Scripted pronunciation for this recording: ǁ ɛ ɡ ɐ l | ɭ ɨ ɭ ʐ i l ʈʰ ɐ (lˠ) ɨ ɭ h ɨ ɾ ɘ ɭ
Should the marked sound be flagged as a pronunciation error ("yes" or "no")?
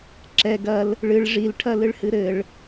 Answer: yes